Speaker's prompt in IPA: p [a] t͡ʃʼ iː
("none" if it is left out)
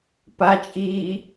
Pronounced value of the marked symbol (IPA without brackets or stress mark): a